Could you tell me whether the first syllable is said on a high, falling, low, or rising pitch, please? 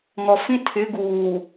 low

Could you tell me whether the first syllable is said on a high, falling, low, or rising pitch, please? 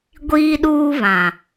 high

